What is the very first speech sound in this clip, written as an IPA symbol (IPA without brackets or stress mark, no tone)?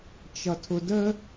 t͡ʃ